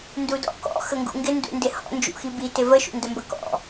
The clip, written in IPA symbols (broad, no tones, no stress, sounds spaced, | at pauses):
n d u d ɔ̰ k ɔ̰ x ə ŋ ɡ ṵ ŋ ɡ ɪ n d ṵ n d ɪ h ɔ̰ n d͡ʒ ṵ x i b i t ɪ v ə ʃ ṵ n d ə m b ə k ɔ̰